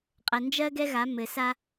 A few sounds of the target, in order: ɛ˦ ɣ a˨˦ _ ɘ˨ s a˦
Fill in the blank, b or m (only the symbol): m